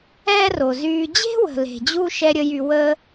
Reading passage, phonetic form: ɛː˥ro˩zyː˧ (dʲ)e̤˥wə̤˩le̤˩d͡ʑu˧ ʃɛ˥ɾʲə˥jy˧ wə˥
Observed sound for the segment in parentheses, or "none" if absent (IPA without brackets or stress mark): d͡ʑ